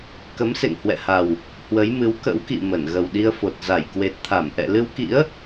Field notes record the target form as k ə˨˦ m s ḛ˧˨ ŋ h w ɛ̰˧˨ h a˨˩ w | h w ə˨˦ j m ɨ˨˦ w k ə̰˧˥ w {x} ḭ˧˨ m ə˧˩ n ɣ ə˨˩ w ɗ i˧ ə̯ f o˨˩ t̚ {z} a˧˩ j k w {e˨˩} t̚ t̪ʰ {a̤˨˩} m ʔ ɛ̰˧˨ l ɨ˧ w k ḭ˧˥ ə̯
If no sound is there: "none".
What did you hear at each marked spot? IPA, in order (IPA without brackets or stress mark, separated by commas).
k, z, e˨˩, a˧˩